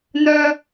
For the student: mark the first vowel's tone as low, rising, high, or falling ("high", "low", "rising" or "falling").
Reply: high